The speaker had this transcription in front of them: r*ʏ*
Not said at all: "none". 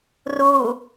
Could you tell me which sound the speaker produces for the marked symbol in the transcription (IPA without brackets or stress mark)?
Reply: u